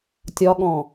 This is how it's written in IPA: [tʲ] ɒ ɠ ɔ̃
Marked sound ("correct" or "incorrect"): correct